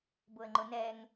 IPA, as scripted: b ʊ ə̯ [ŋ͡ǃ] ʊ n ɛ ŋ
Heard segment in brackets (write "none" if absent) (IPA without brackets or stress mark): ŋ͡ǃ